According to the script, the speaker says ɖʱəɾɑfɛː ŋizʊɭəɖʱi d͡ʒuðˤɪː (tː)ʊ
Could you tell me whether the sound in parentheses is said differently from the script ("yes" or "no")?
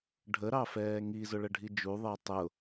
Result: yes